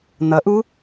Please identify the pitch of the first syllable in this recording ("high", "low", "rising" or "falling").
rising